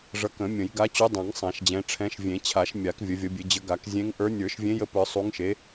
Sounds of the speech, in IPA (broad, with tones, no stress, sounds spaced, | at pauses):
ʐ ʌ˨˦ k ə̃˨˩˦ mʲ ə̃˨˩˦ j ɡ a˨˦ t͡ɕ u˨˦ dˤ ã˨˩˦ ŋ sˤ ã˨˩˦ ʃ d͡ʑ ɛ̃˨˦ ʈ͡ʂʰ ɛ̃˨˦ ʃ vʲ ẽ˨˩˦ t͡ɕʰ a˨˩˦ ʃ mʲ a˨˩˦ k vʲ ə˨˦ vʲ ʌ˨˦ bʲ e˨˦ d͡ʑ ə˨˦ ɡ a˨˩˦ k zʲ ẽ˨˦ ŋ ʔ ə˞˨˦ nʲ ə˞˨˩˦ ʃ vʲ ẽ˨˦ j ə˨˦ p ə˞˨˩˦ sˤ u˨˦ ŋ ʃ e˨˦